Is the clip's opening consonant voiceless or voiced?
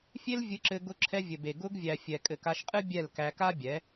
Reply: voiceless